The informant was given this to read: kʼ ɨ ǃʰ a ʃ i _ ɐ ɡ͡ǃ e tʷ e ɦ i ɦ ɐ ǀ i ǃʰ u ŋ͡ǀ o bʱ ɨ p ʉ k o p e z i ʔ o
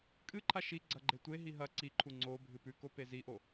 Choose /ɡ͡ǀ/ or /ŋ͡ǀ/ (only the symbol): ɡ͡ǀ